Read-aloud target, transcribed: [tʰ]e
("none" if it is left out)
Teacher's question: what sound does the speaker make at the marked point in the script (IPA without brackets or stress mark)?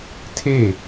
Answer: tʰ